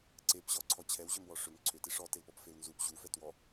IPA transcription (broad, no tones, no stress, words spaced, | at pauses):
ǀepʑɔǀʰɔ t͡ɕʰɛwʑɵmwɔ ʂʏm ǀʰʏtiʂ ɔtelpɔpfew nzup ʑufɛtwɔ